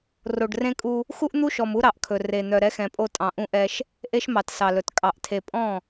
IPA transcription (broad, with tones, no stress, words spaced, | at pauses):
ro˨ɖrẽ˦kʼu˦ | xu˦ʔn̪u˦ʃɔ˨m u˦ɾɑ˨ʔkʰɵ˨ re˨ n̪œ˨ɾɛ˦xɛ̃˨pʼo˦ tʼɑ̃˨ʔũ˦ ʔɛ˦ʃ | ʔe˦ʃmɑ˨t sɑ˨lɵ˨t kʼɑ˨ʔtʰe˨pʼɔ̃˦˨